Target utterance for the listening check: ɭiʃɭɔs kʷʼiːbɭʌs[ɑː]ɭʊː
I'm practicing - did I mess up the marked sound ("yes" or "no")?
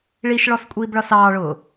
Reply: no